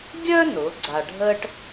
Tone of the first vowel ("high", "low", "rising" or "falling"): high